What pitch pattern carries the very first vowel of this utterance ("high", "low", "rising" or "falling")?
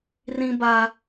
high